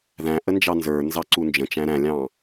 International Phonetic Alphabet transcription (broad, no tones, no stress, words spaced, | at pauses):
ðæ̃ ʔənd͡ʒɑnzə˞nzɑ ǀund͡ʒə̃t͡ʃæ̃ ɾæ̃lʲɑ̃